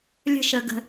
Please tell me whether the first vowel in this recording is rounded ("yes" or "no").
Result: no